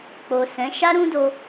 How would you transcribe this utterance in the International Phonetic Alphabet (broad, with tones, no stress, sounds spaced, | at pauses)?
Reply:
k͡p o˨ s ɛ̃˨˦ ʃ a˦ ɾ ũ˦ d o˧